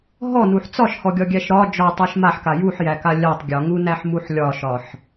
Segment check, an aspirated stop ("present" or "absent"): absent